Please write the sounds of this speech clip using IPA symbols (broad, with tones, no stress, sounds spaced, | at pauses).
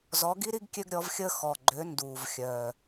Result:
z ɔ˨˥ ɡ i˥ ɾ i˥ ɡ kʲ ø˥ ɡ ɾʲ ɔ˨˥ v xʲ əː˥ x ɔ˨˩ ɡ͡ǃ ø˨˥ n d uː˨˩ v xʲ œː˨˩